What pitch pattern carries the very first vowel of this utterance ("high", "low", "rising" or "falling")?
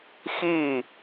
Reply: falling